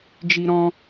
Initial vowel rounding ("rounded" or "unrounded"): unrounded